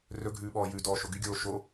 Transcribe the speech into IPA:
rɵɡʱʉː ɓɔːjʉdɔː ʃoɡyɡʲoː ʃo

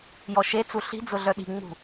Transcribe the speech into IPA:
jɔʃet͡su ɬi̤d͡zʊ ɮœɗi̤ŋ͡mṳ

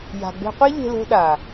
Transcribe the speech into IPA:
ja̤˨ɡ͡be̤˧qʷe˦ ʎe̤˧lo̤˧ɗa˨

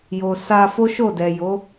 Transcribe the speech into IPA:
jo˨sa˧ fo˦ʃo˦˨dɛ˨jo˨˦

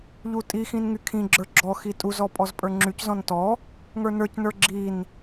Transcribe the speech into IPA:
ʎutʼixĩn ŋykʰĩɡ͡ǁə˞ ɡ͡ǁɔ xitʼuzɔ pʼɔzpʼə˞ŋ͡ǁyczɔ̃n tɔ | ŋə˞nə˞cnə˞ ɡ͡ǁin

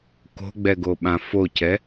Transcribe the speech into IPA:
ko̤ɡ͡bɛɡoɓã focɛ

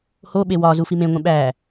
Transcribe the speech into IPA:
hoɓe wɒ zufimẽŋʷẽ ɓæ

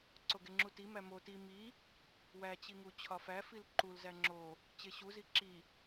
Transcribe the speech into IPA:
ǀoɡeŋ͡ǁuti mæmo ti mi | wæt͡ɕiŋu t͡ɕʰɒfæfil ǃulzæ ŋ͡ǁo | t͡ɕeɕuzi ǁi

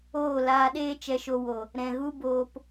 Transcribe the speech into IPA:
oː˦˨laː˧ɗeː˦ t͡ʃɛ˧ʃo˧wo˨ | ɾɛ̃˨ɣu˦boː˧p

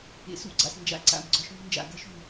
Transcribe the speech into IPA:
ḛ˩˧sṵ˥ɡ͡ǀa̰˩s nd͡ʒa̰˧˥ǀa̰˩mɡ͡ǀɒ˧ʃmʉ˧ nd͡ʒa̰˩ɡɐ˧˥ʃʉ˩m

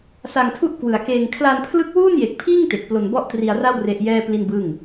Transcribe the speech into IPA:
sa˧ŋtʰu˥˩ʔkwɯ˨˩a̯keː˧ŋ kʰla˧npʰlɯ˦˥k̚ wuː˥˩nje˨˩k̚pʰiː˥˩ŋ te˨˩k̚ plo˧nbɔ˥˩ʔtri˧a̯ra˥˩w re˦˥ʔjɛː˥˩pli˥˩nbɯː˥˩ŋ

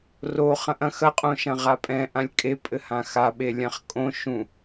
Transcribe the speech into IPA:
roχɐ̃ʔɐ̃ xɐqʼõʃɐ̃ ʁapʼɛ̃ ʔãlʲkʼe pʼɘhãxaɓe lʲãχkʼõ ʃũ

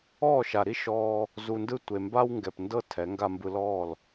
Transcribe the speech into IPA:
ɔː˦˨ʃa˨ɾi˦ ʃɔː˧ | zu˧ndɯ˦ tʷe˨mba˧wŋɡɛ˨pndɤ˧ tʰɛ˨˦ŋɡa˧mbɯ˧lɔː˦˨l

